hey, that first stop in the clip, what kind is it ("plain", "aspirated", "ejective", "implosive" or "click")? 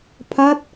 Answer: aspirated